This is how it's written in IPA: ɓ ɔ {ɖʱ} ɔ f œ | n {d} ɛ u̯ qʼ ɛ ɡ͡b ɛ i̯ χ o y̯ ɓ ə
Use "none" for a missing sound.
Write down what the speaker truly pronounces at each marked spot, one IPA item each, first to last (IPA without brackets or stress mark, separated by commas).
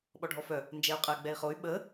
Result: ɖʱ, d͡ʒ